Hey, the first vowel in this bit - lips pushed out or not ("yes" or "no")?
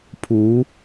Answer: yes